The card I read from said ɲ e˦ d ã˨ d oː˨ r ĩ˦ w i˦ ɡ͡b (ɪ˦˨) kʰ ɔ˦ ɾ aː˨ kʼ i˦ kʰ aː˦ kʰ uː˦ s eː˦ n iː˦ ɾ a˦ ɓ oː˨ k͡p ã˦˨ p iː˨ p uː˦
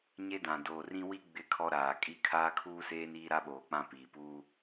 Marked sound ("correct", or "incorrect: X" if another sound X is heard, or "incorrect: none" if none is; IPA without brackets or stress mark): correct